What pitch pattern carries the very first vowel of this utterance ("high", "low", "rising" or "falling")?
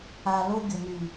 low